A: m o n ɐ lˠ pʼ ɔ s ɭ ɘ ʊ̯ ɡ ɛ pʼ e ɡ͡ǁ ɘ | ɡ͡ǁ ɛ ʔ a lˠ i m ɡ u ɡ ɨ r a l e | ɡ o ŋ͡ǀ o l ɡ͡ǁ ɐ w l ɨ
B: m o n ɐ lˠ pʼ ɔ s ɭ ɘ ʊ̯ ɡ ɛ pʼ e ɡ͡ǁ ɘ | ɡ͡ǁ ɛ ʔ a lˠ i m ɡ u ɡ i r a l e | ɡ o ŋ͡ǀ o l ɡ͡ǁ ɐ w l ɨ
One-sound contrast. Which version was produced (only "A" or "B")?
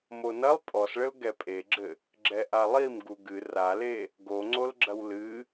A